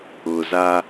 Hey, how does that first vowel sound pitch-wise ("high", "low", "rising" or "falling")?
low